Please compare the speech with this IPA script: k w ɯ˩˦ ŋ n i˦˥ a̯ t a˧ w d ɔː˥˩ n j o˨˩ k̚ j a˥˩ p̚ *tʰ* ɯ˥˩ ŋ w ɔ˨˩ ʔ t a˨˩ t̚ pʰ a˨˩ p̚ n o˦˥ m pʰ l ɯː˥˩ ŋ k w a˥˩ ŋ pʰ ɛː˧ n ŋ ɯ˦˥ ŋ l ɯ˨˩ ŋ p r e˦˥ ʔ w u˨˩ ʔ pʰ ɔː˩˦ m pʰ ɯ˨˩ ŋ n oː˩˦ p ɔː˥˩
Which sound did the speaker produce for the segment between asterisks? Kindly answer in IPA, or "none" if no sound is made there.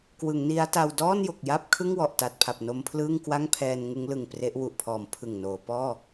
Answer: kʰ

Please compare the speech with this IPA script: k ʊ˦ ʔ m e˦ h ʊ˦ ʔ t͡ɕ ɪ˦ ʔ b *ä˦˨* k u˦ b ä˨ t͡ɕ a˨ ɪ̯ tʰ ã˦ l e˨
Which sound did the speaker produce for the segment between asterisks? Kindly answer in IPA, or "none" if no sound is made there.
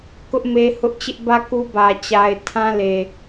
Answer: ä˦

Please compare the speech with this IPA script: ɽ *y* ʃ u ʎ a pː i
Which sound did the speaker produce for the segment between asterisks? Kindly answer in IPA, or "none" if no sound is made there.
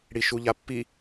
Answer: i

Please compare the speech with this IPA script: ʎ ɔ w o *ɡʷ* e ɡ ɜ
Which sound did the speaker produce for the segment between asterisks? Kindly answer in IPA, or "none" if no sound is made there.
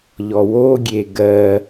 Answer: ɡʲ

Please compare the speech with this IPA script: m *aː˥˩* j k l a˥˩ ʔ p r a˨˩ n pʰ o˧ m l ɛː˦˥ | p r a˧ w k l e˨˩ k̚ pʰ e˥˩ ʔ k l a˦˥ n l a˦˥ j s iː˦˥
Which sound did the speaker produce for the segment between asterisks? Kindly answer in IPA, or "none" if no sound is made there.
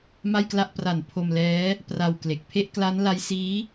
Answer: a˥˩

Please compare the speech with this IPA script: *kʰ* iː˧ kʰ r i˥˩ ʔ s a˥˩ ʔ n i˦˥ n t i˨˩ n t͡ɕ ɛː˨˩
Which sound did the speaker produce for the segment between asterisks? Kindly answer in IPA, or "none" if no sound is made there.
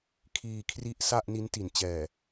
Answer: kʰ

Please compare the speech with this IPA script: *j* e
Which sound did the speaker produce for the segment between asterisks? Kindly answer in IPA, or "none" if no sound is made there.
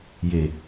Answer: j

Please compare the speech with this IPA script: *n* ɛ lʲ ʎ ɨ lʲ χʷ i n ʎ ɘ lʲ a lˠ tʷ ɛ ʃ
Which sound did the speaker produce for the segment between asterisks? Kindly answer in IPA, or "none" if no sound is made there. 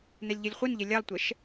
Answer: n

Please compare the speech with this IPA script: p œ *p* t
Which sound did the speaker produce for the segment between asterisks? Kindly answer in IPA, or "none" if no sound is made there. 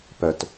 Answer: none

